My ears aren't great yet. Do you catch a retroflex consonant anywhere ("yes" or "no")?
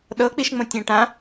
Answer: yes